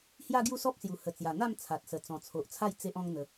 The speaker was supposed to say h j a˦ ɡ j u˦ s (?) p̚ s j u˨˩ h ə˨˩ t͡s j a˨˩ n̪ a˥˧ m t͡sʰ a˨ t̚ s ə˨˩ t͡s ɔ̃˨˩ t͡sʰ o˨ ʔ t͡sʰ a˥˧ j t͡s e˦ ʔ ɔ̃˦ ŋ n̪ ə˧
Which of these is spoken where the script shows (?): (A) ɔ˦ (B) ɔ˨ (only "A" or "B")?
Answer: A